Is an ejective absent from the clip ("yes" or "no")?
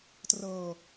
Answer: yes